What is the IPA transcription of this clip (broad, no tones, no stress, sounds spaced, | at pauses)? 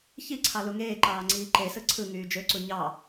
ç i ǀʰ ɑ l u ŋ eː ǃ ɑː ŋ͡ǀ iː ǃ e s ɯ ǀʰ ɯ ŋ yː d͡ʒ ø ǀ u ɲ ɑ